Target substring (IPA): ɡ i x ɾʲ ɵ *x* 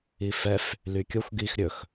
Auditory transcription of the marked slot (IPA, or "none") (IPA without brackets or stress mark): x